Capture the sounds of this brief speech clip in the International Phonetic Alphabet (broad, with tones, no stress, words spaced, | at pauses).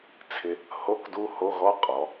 t͡sʰɪ˧ | ho˧˥˧kdu˦˥ho˧˥˧ɣɔ˦˥ qʼɔ˩˧